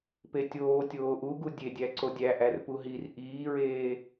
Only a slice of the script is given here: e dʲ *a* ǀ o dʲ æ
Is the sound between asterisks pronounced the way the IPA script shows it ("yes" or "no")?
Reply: no